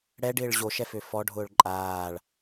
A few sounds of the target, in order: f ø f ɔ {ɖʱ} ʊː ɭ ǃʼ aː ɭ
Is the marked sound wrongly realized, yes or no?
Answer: no